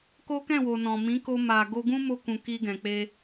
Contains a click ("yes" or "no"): no